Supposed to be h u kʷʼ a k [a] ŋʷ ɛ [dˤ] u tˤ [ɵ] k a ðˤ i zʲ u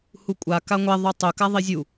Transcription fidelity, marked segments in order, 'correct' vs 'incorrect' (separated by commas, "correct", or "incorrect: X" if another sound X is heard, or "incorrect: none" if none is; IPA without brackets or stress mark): correct, incorrect: ðˤ, correct